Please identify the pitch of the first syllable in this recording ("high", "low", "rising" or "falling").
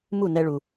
falling